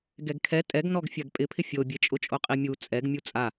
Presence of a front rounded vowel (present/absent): absent